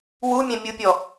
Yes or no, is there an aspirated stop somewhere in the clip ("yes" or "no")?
no